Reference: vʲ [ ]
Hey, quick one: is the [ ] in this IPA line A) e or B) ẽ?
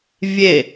A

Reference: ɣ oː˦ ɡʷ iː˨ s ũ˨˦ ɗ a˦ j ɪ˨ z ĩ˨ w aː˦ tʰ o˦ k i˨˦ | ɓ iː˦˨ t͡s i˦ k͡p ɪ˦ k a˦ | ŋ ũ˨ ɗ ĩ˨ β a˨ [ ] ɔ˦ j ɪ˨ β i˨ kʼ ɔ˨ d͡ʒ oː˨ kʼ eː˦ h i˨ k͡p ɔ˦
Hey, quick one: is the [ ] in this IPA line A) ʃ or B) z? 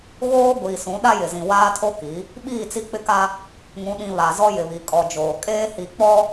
B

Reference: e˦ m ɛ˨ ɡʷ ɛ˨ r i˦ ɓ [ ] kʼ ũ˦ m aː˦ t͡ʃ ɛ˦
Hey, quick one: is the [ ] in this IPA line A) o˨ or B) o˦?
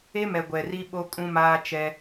B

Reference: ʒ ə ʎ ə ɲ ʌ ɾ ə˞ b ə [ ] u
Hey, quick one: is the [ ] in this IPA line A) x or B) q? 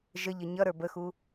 A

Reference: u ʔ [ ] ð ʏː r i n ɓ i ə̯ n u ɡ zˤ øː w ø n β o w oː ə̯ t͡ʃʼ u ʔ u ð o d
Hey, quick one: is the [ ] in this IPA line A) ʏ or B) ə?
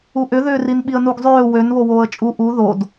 A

